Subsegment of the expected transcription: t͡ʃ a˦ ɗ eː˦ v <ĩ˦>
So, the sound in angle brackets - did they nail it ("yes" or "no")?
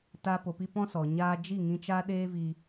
no